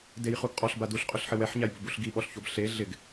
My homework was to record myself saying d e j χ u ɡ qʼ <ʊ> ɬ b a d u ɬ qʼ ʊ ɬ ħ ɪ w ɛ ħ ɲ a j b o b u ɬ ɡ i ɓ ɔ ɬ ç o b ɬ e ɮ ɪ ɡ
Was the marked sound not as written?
yes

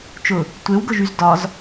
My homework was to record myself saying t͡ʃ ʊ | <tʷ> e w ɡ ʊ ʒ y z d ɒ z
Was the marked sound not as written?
no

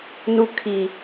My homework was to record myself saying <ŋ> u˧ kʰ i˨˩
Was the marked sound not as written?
yes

